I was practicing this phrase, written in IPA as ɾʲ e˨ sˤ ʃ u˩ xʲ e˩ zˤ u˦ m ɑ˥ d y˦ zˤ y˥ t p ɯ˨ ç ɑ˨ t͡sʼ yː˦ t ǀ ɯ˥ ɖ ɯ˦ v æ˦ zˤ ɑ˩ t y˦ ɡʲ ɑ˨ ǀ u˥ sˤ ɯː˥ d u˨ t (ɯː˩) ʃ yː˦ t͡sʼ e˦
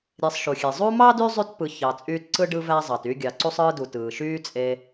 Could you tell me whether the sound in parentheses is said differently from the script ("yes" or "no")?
no